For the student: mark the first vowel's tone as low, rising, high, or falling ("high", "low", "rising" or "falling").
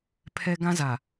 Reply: high